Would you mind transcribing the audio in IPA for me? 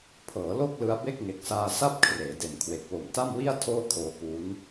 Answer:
pʰ ɤː˩˦ l o˥˩ k̚ l ɯ˧ a̯ b e˥˩ k̚ ŋ e˨˩ k̚ s aː˧ s a˥˩ p̚ kʰ r eː˩˦ d e˨˩ n kʰ w e˨˩ k̚ w o˨˩ m t a˥˩ m w i˥˩ a̯ tʰ oː˥˩ kʰ oː˧ k uː˦˥ n

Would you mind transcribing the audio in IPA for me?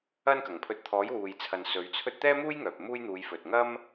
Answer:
ɐ˥ n k ɐ˨˩ ŋ pʰ ɵ˧ t̚ t̪ʰ ɔː˨˥ j w uː˨ j t͡sʰ ɐ˨ n s ɵ˨˧ ɥ t͡sʰ ɵ˥ t̚ t̪ ɛː˥ m uː˥ j ŋ œː˨ p̚ m uː˥ j n̪ uː˨˧ j f ɵ˨ t̚ ŋ ɐ˥ m

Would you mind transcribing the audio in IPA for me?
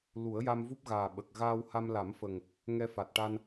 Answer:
l u˨˩˦ ə̯ j a˧ m v u˦˥ p̚ ɣ aː˨˩ ɓ ə˨˩ k̚ ɣ aː˧ w h a˧ m l a˨˩˦ m f ə˨˩ ŋ | ŋ ɛ˧ f a˨˩ t̚ ʈ a˧ n

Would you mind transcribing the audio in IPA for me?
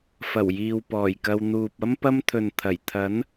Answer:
f ɐ˨˩ w j iː˨ w p ɔː˨˩ j k ɐ˧ w n̪ uː˨ p̚ ɐ˥ m p ɐ˥ m t̪ʰ ɵ˨ n t̪ʰ ɐ˨˩ j t̪ʰ ɐ˨˥ n

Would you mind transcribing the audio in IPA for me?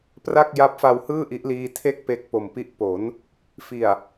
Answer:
p r a˥˩ k̚ j a˦˥ p̚ f a˧ w h ɯː˥˩ ʔ i˦˥ ʔ l iː˧ tʰ e˥˩ k̚ p e˦˥ k̚ p o˨˩ m p i˦˥ ʔ p o˩˦ n | f i˨˩ a̯

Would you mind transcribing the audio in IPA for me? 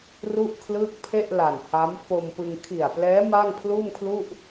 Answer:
r u˥˩ ʔ kʰ l ɯː˥˩ k̚ pʰ e˥˩ ʔ l a˨˩ n h a˦˥ m f o˧ m p ɯ˧ ŋ kʰ i˨˩ a̯ p l ɛː˦˥ m a˥˩ ŋ pʰ l uː˥˩ m kʰ l u˥˩ ʔ

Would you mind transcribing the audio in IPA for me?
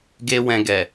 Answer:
ɡ e˦ w ɛ̃˧ ɡ ɛ˨

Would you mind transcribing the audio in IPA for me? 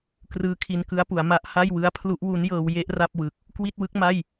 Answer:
k r ɯː˦˥ kʰ i˧ n k ɯ˦˥ a̯ p u˩˦ a̯ m a˦˥ ʔ h a˥˩ j w ɯ˦˥ a̯ pʰ l u˦˥ ʔ w u˦˥ n j ɤː˧ w j e˥˩ ʔ r a˥˩ p̚ w ɯ˨˩ k̚ | k w i˥˩ t̚ w ɯ˦˥ k̚ m a˥˩ j

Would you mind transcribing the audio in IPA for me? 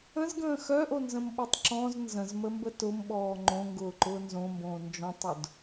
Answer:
ə̃ z ɡ ə̃ː x œ ʔ o n z ə̃ m ɓ ɔ tˤ ǁ ɔ̃ z n z ə̃ z m ə m b ə t ʊ m ɓ ɔː ŋ͡ǃ õ ŋ ɡ ʊː ǃ ʊː n z õ m b õː n d͡ʒ ɔ̃ tˤ ʊ d

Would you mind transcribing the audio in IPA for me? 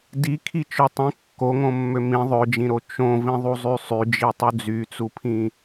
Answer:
d i kʰ i t͡ʃ ø tˤ ĩ kː o ŋ õ mː ø m ĩ ðˤ ø d͡ʒ ĩ ɾ o t͡ʃ õ v ĩ ðˤ u zˤ y sˤ y d͡ʒ i tˤ u d͡z y t͡s u pʰ ĩ

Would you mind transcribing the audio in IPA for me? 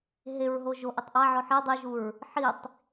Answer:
ɦ e ɹ ɦ o ʒ o ʔ e tˤ ʔ a ʕ ɔ ħ i dˤ i ʒ u ɹ | ħ i tˤ

